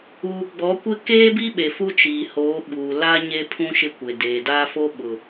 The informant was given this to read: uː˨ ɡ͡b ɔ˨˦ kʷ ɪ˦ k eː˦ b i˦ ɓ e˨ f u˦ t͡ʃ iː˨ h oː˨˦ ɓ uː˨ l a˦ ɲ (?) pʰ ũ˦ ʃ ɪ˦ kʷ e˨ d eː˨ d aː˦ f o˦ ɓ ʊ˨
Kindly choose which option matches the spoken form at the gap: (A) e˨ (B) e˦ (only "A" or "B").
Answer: B